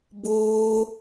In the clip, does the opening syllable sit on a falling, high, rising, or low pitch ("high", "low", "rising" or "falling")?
high